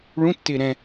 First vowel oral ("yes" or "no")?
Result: no